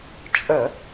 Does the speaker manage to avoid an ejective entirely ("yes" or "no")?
no